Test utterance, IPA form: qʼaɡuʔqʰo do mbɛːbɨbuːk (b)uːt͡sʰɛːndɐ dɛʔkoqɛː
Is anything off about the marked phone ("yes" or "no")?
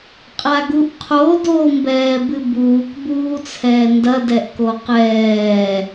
no